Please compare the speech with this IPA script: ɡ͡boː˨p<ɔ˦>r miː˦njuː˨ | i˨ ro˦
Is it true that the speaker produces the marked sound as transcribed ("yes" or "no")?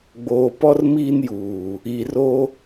yes